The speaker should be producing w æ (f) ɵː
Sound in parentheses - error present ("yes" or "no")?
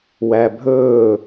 yes